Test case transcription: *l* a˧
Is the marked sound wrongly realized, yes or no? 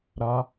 yes